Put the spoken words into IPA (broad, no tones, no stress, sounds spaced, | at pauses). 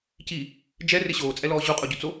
c i | d͡ʒ ɛ r ɪ ɕ oː t͡sʼ ɛ l ɔː ʑ u qʼ o ɟ u t͡s o